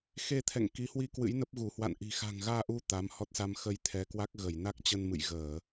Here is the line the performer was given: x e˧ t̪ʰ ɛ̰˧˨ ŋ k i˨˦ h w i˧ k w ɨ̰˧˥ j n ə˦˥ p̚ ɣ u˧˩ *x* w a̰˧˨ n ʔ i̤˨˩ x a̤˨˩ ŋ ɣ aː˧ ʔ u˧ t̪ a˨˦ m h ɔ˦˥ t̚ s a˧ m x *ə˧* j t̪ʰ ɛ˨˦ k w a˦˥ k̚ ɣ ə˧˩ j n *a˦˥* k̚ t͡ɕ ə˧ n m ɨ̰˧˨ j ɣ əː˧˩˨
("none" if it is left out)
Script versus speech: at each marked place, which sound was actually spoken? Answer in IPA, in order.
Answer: h, ə˧, a˦˥

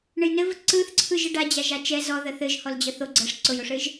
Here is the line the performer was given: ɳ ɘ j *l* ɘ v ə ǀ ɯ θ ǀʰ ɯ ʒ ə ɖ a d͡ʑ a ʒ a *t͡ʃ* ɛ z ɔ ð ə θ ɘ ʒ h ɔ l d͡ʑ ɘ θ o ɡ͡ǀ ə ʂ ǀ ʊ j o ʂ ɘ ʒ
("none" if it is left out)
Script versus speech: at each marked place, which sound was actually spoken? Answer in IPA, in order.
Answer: n, t͡ʃ

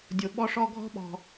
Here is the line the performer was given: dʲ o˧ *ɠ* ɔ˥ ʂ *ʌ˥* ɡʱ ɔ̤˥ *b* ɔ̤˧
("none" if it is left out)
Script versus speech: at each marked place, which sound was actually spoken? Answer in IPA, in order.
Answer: ɓ, ɔ˥, ɓ

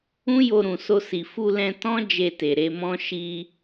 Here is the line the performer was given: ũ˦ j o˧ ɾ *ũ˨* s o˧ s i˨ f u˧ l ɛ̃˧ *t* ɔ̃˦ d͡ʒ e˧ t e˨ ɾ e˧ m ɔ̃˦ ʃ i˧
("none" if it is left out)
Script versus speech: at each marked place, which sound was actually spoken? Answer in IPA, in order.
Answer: ũ˨, t

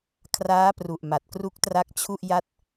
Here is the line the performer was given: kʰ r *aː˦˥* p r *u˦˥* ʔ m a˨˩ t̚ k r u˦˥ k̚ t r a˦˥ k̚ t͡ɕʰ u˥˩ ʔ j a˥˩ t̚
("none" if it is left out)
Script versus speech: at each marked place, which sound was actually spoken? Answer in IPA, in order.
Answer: aː˦˥, u˨˩

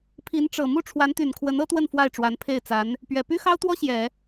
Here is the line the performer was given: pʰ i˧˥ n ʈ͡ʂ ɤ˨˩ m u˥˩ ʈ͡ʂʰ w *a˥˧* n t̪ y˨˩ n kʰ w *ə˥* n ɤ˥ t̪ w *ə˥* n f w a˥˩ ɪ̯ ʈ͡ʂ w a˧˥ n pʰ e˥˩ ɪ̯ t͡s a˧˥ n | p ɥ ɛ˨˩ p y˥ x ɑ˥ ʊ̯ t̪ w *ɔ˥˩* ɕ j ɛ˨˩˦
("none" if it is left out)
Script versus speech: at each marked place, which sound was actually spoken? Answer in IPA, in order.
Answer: a˧˥, ə˧˥, ə˥˧, ɔ˥

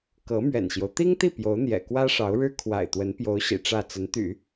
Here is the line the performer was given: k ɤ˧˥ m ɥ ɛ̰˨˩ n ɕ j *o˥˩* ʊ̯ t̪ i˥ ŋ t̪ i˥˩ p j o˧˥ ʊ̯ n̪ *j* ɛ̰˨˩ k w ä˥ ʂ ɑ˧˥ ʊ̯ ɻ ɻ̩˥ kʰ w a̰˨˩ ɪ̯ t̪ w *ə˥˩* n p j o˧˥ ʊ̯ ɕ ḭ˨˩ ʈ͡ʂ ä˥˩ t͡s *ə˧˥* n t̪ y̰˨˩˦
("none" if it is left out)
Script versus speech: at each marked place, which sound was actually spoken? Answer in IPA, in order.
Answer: o˦, j, ə˧˥, ə˧˥

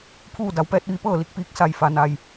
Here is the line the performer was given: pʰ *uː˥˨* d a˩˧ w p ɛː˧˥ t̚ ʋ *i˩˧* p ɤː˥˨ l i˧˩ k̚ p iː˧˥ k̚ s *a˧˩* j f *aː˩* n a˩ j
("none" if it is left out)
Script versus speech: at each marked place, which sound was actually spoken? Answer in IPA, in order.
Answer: uː˥˨, i˧, a˧˩, a˩

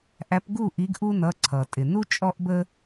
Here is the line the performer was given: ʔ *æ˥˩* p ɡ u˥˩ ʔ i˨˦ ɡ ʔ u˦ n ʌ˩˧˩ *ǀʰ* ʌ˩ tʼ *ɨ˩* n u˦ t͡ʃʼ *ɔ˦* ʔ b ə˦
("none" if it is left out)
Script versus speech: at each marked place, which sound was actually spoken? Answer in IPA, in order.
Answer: æ˨˦, ǀʰ, ɪ˩, ɔ˦

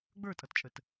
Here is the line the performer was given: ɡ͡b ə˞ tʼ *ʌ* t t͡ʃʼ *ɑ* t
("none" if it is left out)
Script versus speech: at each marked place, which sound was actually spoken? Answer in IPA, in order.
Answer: ʌ, ə

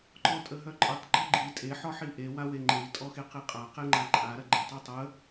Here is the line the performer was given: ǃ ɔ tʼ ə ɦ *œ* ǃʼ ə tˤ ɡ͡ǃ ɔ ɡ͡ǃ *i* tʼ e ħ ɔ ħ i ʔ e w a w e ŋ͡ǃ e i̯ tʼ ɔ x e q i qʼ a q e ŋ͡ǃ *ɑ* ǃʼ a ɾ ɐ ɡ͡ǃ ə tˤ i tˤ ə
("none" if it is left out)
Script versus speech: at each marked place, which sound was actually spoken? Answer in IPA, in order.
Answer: œ, i, a

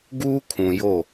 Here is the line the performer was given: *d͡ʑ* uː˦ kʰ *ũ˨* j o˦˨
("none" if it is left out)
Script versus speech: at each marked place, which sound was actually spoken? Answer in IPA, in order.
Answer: ɡ, ũ˨

